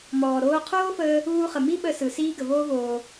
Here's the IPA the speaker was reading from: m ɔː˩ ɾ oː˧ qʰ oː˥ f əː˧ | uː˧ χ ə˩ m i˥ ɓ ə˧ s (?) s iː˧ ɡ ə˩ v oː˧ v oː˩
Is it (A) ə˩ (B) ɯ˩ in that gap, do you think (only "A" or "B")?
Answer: B